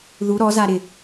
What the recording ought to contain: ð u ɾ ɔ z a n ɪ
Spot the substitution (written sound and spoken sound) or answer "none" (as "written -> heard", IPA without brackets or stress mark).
n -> ɾ